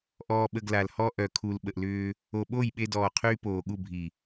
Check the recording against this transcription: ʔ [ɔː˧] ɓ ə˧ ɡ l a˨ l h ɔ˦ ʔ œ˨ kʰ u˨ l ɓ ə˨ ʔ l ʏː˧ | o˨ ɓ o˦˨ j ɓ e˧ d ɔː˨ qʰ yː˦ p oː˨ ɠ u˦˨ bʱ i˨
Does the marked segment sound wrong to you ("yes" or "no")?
no